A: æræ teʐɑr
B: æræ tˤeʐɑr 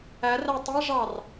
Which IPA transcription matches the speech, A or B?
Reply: B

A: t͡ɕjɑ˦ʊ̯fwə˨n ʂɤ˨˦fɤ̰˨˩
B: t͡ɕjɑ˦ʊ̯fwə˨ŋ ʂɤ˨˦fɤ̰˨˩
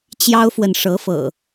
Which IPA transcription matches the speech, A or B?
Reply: A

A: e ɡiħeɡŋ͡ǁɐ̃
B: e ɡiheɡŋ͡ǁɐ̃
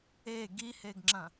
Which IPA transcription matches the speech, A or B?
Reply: B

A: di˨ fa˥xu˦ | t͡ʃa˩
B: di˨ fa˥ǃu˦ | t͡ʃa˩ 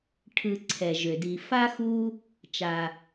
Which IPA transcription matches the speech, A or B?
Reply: A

